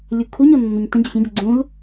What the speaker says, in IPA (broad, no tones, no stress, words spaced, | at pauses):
lʲukʰuɲɔ nːɵɲtə̃ɟoç ə̃ɟʌ ɡ͡ǀũl